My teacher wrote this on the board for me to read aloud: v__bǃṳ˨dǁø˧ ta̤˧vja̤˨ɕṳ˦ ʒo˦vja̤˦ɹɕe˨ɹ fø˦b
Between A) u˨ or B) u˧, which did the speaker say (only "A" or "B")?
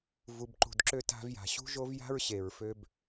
A